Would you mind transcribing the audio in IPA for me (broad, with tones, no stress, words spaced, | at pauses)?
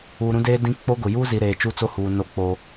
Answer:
uː˨ɾũ˦ deː˦dĩ˦ k͡po˦ɡʊ˨ juː˦zi˨ ɾeː˨t͡ʃu˦t͡so˦huː˨ no˦ k͡po˦